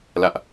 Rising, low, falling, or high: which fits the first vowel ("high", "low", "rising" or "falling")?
high